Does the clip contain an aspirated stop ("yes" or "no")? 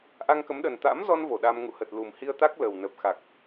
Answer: no